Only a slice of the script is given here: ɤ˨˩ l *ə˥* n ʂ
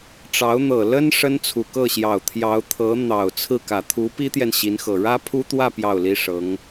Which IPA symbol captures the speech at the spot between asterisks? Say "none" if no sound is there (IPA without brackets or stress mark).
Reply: ə˥